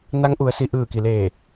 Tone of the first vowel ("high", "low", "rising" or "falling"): rising